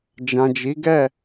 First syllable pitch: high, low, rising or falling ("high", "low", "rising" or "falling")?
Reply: low